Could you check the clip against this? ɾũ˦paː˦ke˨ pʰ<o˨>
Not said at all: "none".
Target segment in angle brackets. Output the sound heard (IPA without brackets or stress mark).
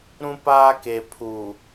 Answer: u˨